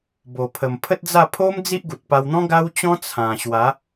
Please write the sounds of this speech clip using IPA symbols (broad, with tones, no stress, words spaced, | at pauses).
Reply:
bo˨˩pʰə˨˩m pʰə˦t̚d͡za˥˧ pʰo˦m d͡zi˦ʔɡu˨t̚pa˧wn̪ɔ̃˦ ɡa˦wt͡ɕɔ̃˦ t͡sʰã˨˩ɕwa˨˦